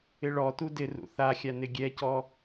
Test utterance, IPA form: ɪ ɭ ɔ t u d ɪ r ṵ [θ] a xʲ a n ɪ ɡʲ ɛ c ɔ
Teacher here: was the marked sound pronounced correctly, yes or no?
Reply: yes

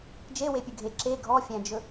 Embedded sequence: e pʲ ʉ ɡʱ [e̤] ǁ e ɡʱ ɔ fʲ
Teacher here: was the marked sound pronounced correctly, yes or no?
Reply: no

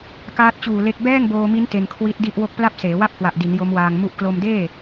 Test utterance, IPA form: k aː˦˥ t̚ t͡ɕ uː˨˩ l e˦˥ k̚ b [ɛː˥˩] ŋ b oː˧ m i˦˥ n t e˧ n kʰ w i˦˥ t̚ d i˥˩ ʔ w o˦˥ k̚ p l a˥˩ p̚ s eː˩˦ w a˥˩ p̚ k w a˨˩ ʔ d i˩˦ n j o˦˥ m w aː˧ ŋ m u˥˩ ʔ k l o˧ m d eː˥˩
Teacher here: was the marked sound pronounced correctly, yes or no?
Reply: yes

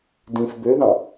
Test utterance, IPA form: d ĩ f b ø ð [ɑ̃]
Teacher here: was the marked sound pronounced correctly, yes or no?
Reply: yes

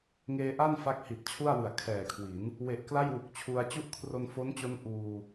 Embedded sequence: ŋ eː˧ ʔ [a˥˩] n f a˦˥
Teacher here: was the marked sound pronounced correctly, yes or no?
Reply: yes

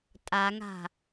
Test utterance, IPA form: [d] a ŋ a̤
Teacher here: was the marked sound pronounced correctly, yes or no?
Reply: no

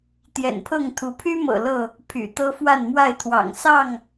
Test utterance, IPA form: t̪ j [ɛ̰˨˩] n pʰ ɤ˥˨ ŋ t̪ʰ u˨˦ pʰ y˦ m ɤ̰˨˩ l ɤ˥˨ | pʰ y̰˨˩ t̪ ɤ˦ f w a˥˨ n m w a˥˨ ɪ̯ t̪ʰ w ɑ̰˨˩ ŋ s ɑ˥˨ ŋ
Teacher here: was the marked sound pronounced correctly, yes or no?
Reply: yes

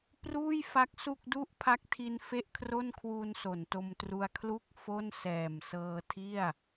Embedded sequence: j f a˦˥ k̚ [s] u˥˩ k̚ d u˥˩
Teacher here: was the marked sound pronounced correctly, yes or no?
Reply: yes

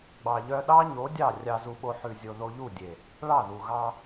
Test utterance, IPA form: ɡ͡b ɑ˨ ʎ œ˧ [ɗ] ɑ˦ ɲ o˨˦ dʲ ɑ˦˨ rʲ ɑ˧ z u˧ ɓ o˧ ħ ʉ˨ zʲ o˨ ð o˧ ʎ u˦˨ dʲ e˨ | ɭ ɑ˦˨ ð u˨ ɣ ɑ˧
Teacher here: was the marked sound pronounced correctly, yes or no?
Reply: yes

